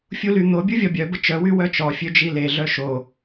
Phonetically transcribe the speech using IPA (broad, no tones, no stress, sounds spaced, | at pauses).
fʲ u l y n̪ o bʲ u vʲ ɔ bʲ œ b ə t͡ʃ œ w y w œ t͡ʃ ɔ fʲ ø d͡ʒ i l e ɮ œ ʃ o